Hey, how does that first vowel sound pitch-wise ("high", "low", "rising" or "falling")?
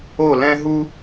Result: falling